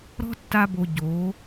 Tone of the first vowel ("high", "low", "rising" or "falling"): high